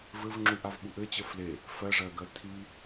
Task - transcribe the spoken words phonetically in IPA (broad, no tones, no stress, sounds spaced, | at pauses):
v ɘ v ŋ͡ǁ u ʔ a v ɓ u ʔ ɘ t͡ɕ ə f l e | f ɜ ʐ ɜ ɡ ɜ tʰ i